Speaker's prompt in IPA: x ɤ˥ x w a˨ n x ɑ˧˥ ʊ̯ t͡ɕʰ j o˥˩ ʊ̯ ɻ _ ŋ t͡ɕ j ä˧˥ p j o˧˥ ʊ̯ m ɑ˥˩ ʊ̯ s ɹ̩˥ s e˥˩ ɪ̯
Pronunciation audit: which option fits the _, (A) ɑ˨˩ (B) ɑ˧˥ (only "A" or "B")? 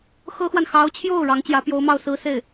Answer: B